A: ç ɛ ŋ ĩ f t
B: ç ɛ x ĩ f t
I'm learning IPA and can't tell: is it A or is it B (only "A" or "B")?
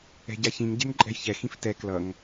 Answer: B